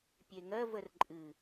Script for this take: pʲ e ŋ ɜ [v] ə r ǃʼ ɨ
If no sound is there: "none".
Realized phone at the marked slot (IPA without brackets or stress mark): v